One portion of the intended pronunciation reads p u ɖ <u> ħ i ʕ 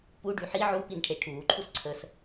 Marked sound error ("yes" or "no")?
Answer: yes